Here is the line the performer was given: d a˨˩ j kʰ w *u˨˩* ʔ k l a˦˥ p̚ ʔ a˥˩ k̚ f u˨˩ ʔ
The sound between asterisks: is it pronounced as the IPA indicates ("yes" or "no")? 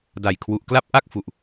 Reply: yes